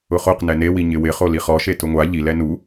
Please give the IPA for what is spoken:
ʊ χ o q n ɛ n e w i ɲ ɪ w ɪ χ o l i χ ɔ ʃ e t ʊ ŋʷ a ʎ i l ɛ n u

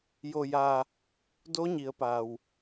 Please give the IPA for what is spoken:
j o˩ j aː˩ | d o˧˥ ɲ i˩˧ ə̯ p a˩ w

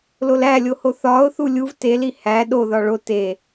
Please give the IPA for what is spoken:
l o l æ lʲ o h o θ ɒ ʊ̯ θ u lʲ u v t e l i h æ ɗ o ð ɒ ɭ o t e

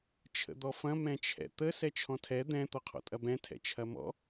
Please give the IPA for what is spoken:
t͡ʃʰ ə̰ d̪ ɔ f ɐ̃ m ɛ̃ t͡ʃʰ ɛ̰ t̪ ə s ɛ t͡ʃʰ ɔ̃ tʰ ɛ d̪ ɛ̃ t̪ ɔ qʰ ɔ̰ tʼ ɐ b ɛ̃ tʰ ɛ̰ t͡ʃʰ ɐ m ɔ̰

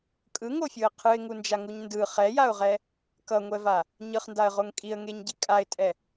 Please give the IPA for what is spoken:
kʼ ɯ ŋ o fʲ ɯ ə̯ qʰ ɯ ɪ̯ ŋ u n d͡ʒ a ŋ u ɲ n d ɯ χ ɛ j a ʊ̯ ʁ ɛ | k ʌ ŋʷ ɛ v a | ɲ ɯ χ n d a ə̯ ʁ o ŋ kʼ i ə̯ ŋ e ɲ ɟ i kʼ a ɪ̯ tʼ ɛ

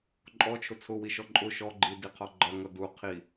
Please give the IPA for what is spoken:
ǃʼ ɔ t͡ʃʰ ʊ t͡sʰ ʊ w i ʃ ɔ ǃʼ ʊ ʃ ɔ ɡ͡ǃ i d i qʰ ɔ ɡ͡ǃ ʌ ŋ ʌ d u qʰ i

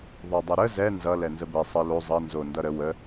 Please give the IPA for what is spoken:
ðˤ o dˤ ʌ ɾ ə z ɛ n z ʌ l ɛ n z ə b ɛ sˤ ə l o zˤ ʌ n z o n d ʌ ɾ ə w ə

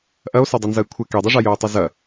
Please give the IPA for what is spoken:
ʔ ɐ o̯ s œ dˤ œ n z ɐ e̯ kʷʰ ɘ k e dˤ i ʐ a j œː tˤ œ z ɐ

